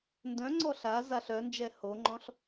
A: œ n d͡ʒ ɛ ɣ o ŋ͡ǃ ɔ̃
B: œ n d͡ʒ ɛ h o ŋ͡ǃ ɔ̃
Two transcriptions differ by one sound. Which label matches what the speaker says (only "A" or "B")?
B